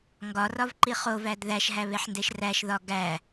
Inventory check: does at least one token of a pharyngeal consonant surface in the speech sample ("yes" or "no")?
yes